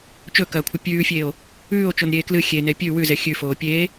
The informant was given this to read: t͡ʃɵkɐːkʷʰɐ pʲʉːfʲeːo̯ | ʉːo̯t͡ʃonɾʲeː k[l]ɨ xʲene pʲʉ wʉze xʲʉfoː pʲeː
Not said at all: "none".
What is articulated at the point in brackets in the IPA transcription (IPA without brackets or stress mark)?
l